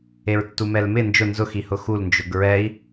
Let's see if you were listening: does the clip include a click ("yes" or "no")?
no